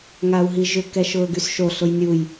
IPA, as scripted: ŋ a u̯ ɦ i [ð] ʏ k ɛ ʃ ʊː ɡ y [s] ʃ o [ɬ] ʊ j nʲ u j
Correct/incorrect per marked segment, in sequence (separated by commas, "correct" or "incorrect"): incorrect, correct, correct